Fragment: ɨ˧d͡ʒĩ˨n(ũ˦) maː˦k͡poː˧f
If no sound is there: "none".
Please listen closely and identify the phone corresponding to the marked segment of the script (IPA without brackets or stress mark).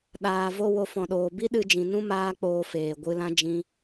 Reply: ũ˦